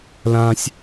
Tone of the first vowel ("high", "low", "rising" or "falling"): high